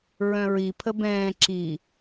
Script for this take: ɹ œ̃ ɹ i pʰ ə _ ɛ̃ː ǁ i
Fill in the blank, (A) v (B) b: B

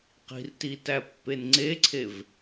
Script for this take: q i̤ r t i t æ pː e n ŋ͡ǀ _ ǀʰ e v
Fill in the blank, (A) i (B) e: B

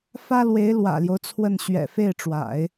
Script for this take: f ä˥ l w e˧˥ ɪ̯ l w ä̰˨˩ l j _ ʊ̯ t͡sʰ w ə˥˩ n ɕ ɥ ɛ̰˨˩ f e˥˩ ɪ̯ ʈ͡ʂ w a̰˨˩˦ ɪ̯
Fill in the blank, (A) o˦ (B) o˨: A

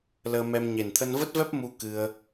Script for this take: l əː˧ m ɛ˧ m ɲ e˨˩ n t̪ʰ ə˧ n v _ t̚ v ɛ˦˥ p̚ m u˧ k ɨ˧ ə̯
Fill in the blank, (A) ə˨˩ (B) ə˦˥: B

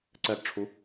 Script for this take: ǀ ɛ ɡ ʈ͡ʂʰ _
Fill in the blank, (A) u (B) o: A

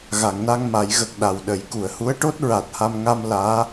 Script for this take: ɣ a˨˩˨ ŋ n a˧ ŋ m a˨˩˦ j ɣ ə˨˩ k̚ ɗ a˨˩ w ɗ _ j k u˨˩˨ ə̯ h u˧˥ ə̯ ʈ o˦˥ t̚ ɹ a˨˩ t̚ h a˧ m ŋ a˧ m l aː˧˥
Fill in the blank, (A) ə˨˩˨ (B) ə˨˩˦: A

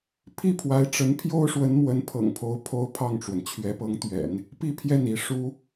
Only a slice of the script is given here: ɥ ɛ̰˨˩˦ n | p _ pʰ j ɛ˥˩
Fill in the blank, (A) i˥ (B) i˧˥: A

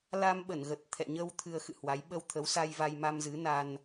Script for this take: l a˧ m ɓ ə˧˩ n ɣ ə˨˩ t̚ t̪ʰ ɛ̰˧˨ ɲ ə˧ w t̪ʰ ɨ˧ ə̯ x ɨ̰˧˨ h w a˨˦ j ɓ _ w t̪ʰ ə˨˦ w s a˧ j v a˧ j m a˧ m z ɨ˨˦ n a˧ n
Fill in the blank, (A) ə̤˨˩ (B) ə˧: B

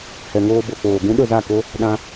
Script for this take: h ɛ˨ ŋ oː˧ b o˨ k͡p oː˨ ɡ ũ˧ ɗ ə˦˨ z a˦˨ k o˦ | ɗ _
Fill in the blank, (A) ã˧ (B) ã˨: A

